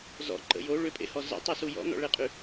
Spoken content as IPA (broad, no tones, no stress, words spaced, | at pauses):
zɔ̰ǃə̰ jo ɭʏpʼḛhɔ zə̰tˤosu jɔ̰nɔ̰ɭeqʼy